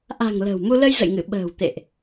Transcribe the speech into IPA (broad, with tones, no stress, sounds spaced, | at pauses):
ʔ a̤˨˩ ŋ l ə̤˨˩ w m u˧ l ə˧ j z ə̰˧˨ j ŋ ɨ˧˩ ɓ ə̤ː˨˩ w t̪ ḛ˧˨ ʔ